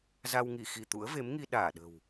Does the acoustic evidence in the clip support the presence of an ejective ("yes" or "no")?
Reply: no